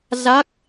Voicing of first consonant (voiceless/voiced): voiced